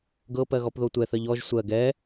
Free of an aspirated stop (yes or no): yes